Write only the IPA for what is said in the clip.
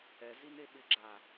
ɛ z i n e ɓ ɪ ɡ͡ǁ a

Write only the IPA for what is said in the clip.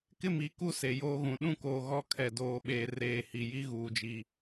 k ɪ˦˨ m i˨˦ k u˦ s e˨ j oː˦ ɣ ũ˨ ɗ ũ˦ k oː˨ ɣ ɔ˦ kʰ ɛ˨ d oː˨ ɓ eː˨ r eː˨ h i˨ j i˦ ɣ uː˨ d͡ʒ i˨

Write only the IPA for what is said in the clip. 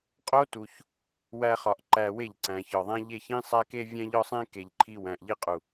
qʼ o˦ t u˧ ç | w æ˦ χ ɒ˧ ʔ ǃ æ˧ w e˦˨ ʎ ǀ æ̃˨ ç ɒ˨ ðˤ æ̃˦ ʎ e˦˨ ç ĩ˦ sˤ æ˦ k e˦ vʲ æ̃˦ ʎ ɒ˦ sˤ ẽ˦ k e˨ ʎ ǃʰ i˧ w æ̃˨ ʔ ʎ i˧ qʼ u˨

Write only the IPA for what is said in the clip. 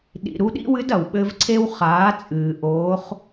ɗ ḭ˩ ɾ u˧ ɗ ḭ˥ w ɨ˧˥ d ɐ˩ w ɓ ɘ˧ v ǀʰ e˧ w χ aː˩˧ t͡sʼ ɨː˩ ʔ oː˧˥ χ

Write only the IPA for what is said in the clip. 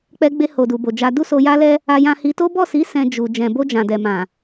k͡p ɛ˧ ɡ͡b e˧ h o˨ d u˨ b o˨ d͡ʒ a˧ d u˦ s o˧ j a˦ l ɛ˦ | a˧ j ã˧ h i˧ t o˦ b ɔ˦˨ s i˨˦ s ɛ̃˧ d͡ʒ u˨ d͡ʒ ɛ̃˨ b o˧ d͡ʒ ã˨ d ɛ˨ m ã˨

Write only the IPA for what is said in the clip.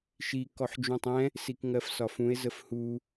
ʃ i k ɔ ħ d͡ʒ ũ tˤ ɛ̃ | s i k ŋ ɜ f s ɒ f ũ e̯ z ə f h u

